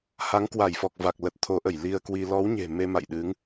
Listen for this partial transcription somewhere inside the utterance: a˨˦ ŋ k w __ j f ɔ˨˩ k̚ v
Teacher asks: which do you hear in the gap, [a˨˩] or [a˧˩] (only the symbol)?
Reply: a˧˩